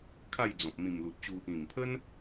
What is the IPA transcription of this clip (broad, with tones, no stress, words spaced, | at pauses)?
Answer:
kʰa˥˧jd͡zɔ̃˨p̚ mĩ˨˩mlu˨t̚t͡ɕu˧ | ĩ˨˩mpʰə˦n